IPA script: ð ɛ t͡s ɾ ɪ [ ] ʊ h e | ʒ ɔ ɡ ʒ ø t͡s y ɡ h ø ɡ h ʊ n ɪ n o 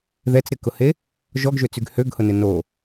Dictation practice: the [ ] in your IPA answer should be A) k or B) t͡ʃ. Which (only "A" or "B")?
A